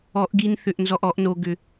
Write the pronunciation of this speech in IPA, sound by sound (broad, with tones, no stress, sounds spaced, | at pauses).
ɔ˧˩˧ ʔ ɡ i˧ n θ ʏ˧˩˧ ʔ n z ɔ˧ ʔ ɔ˧˩˧ ʔ n o˧ ɡ ʏ˧